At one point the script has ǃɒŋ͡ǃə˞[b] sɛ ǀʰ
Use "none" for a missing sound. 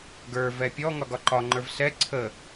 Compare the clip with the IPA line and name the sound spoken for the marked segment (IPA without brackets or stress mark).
v